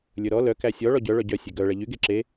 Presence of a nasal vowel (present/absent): absent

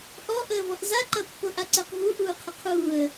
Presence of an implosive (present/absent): absent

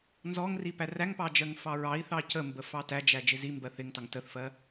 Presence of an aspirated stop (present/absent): absent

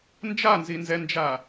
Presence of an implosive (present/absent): absent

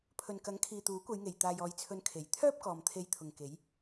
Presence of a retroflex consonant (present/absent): absent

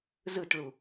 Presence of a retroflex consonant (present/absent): present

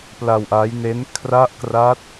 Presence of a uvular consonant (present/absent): absent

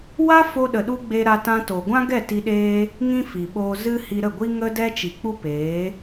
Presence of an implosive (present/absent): present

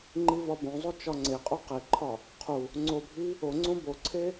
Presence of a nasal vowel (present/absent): present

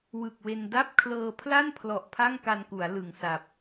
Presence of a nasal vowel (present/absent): absent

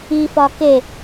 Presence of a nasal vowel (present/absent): absent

